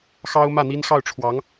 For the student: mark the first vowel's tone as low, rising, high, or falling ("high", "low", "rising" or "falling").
high